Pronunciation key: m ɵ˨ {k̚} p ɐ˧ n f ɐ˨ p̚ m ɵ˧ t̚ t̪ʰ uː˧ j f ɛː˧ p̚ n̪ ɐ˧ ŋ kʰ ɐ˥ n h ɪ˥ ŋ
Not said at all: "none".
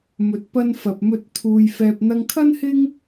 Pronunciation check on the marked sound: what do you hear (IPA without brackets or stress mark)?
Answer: t̚